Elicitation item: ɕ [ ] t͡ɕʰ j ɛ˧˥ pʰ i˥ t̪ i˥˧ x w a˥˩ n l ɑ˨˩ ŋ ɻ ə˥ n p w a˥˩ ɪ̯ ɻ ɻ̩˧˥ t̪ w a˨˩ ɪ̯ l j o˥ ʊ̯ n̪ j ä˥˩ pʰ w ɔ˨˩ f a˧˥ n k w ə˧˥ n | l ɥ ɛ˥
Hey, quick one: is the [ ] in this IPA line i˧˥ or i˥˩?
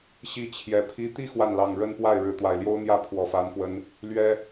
i˥˩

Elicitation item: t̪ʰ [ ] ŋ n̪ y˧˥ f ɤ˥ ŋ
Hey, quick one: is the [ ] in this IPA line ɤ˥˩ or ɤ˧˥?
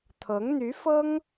ɤ˧˥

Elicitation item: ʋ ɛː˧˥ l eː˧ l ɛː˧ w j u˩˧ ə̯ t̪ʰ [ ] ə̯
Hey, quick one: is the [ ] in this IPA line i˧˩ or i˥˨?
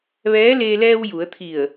i˧˩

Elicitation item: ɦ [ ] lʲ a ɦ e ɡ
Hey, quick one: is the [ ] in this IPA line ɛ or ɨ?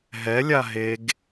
ɛ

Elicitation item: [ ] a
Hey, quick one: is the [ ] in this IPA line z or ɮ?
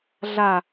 ɮ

